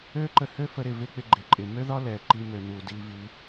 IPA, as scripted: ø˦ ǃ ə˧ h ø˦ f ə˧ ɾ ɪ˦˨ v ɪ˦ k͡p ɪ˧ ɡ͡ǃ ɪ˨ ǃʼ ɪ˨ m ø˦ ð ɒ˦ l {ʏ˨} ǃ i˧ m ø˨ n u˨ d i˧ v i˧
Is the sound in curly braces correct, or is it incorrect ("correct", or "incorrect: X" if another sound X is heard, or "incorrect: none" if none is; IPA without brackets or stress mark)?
incorrect: ɛ˨